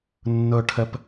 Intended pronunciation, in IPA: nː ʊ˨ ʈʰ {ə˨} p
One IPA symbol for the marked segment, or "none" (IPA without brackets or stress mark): ə˨